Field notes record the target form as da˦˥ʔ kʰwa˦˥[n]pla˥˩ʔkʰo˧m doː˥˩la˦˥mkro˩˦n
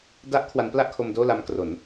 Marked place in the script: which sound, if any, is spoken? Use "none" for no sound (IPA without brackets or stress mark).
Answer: n